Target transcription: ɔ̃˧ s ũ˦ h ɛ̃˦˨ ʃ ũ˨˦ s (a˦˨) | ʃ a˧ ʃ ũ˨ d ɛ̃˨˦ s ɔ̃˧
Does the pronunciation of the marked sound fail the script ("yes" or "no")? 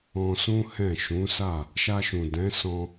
no